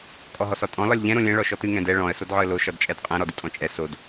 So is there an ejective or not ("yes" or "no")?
yes